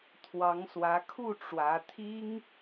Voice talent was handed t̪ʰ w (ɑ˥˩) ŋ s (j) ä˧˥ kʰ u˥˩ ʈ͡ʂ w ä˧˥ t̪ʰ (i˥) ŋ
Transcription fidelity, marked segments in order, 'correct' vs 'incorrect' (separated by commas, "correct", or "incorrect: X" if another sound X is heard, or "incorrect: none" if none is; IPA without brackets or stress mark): incorrect: ɑ˧˥, incorrect: w, correct